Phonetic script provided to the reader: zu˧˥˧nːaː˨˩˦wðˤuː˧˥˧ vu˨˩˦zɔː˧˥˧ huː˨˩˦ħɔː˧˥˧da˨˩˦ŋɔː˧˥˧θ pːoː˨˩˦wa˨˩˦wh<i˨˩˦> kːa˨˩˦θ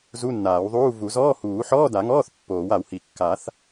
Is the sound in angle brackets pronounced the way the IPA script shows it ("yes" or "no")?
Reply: yes